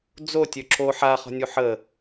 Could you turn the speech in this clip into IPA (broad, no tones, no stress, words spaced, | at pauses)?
d͡zo tʲøǁʰo ħaχɔ̤nʲu ħə